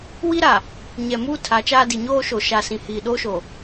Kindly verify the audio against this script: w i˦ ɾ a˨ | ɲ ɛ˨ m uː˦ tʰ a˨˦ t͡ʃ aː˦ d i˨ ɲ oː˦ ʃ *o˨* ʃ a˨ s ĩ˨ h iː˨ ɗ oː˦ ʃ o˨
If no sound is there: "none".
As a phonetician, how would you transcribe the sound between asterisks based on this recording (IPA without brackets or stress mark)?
o˨